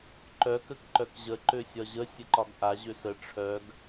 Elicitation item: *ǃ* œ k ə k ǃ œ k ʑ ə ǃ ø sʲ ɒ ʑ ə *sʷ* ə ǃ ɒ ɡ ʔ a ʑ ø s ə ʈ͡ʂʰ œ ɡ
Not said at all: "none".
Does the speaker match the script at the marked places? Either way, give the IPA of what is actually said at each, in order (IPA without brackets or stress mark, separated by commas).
ǃ, sʲ